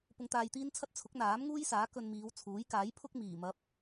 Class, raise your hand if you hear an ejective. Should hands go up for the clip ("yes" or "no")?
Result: no